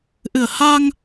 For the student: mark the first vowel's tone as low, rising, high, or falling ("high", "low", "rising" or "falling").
low